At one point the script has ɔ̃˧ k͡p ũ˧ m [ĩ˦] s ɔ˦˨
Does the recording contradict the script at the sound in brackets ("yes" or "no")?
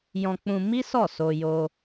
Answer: yes